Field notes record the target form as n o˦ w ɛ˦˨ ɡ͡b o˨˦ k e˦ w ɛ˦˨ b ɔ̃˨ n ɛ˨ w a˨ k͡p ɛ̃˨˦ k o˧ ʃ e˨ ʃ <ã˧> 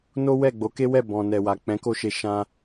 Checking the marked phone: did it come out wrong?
no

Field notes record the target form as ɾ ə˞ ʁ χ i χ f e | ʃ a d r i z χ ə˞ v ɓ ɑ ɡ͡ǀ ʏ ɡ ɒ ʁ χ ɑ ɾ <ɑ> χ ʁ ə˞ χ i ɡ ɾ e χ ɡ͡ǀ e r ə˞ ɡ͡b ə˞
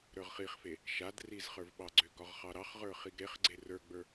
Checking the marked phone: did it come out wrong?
no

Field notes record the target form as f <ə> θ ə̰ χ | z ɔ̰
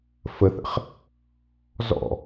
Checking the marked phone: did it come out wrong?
no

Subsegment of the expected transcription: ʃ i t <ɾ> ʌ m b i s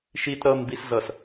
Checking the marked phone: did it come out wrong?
no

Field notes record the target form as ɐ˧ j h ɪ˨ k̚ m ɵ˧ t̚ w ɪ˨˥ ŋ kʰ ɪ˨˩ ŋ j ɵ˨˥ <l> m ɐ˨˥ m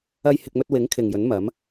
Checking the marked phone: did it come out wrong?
yes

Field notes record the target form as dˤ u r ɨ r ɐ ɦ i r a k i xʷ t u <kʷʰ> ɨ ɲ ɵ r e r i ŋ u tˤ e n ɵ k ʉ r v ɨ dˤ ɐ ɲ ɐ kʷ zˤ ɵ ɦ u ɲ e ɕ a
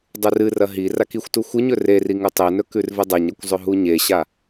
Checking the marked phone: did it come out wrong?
yes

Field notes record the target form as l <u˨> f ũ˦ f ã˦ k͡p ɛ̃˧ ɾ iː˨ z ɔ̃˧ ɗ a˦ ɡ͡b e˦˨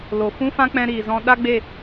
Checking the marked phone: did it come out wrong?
yes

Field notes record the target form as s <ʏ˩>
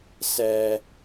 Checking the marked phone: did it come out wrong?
yes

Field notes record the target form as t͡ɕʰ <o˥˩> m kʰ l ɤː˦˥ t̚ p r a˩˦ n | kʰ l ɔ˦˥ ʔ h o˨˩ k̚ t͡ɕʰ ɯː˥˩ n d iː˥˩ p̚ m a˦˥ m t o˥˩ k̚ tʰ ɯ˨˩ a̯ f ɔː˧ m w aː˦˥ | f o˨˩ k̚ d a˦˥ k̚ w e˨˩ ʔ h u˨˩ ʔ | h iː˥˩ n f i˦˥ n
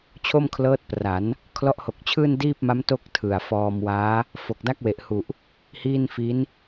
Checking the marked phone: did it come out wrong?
no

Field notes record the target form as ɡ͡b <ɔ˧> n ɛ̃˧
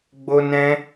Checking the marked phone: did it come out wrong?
yes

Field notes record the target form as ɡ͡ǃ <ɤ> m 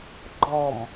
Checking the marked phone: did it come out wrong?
yes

